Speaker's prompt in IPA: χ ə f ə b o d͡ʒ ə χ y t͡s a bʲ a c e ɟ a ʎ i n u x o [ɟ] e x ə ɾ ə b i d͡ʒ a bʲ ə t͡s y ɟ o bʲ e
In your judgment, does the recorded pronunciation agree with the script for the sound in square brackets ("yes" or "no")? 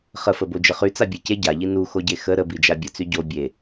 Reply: yes